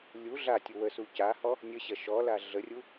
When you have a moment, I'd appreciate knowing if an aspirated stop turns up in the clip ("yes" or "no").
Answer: no